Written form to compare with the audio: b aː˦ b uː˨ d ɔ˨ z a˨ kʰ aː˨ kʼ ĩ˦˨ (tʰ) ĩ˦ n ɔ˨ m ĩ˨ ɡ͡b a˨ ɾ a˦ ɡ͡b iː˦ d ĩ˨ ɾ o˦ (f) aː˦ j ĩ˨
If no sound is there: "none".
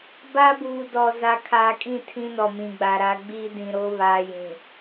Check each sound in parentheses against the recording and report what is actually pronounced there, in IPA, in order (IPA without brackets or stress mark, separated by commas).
tʰ, β